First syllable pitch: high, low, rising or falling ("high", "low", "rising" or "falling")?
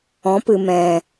rising